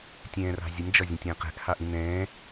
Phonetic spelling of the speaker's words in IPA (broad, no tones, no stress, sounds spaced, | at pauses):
tʲ ɛ̃ː r ɑ̤ zʲ ə m d͡ʒ ɒ zʲ ə̃ tʲ ə̃ː q ɛ̤ ʔ h ɑ ʔ ĩ n ɛ̃ː